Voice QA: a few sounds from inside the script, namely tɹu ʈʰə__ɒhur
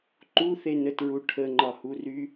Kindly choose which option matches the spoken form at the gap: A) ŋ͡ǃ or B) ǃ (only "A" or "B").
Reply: A